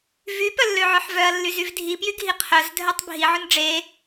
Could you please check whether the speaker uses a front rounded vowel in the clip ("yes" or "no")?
yes